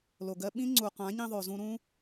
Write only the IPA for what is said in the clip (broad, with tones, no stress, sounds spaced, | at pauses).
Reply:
l o˨ ɡ ɜ˧ ɓ ĩ˦ ŋ͡ǀ u˨ q ã˨˦ ɲ ĩ˧ ðˤ o˨ z ũ˧ ɾ ũ˦